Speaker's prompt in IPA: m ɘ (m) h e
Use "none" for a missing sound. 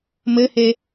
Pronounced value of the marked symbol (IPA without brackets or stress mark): none